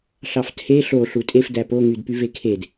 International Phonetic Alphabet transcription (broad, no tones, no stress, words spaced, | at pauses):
ɬɑftʰe ɬo ɬutʼef dæpo ŋydpyvekʰed